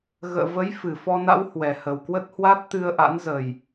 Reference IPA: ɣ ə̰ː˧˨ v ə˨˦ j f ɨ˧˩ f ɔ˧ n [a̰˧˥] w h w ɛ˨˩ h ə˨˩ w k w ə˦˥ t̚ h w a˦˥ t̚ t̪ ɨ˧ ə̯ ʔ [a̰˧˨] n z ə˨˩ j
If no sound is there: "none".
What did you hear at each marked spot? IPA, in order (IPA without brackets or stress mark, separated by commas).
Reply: a̰˧˥, a̰˧˥